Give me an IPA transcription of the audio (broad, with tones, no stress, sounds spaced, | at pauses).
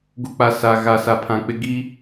ɡ u˨ k͡p a˨ s a˨ ɣ a˨ s a˨ pʰ ã˨ k͡p ɪ˦ ɡ i˦